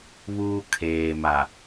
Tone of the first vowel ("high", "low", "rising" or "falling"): high